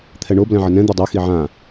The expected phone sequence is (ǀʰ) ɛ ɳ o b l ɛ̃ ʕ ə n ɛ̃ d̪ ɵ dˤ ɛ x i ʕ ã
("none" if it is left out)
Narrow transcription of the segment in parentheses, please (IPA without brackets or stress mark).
t̪ʰ